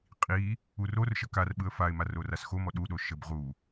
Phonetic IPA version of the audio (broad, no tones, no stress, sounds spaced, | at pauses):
qʼ i | u r o r ʃ ə k a r ɓ ɯ ə̯ f a ɪ̯ m a r o r a s x o m ɔ ɗ u ɗ o ʃ ə b ʁ u